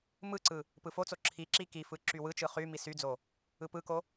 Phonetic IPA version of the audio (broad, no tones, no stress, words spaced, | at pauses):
mɯǀɯ | pɯfot͡so ǁʰi ǁikifɯ ǁywɯt͡ʃɯ χy misyd͡zo | ɯpɯko